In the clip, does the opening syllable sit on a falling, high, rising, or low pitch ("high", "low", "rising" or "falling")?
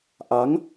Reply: rising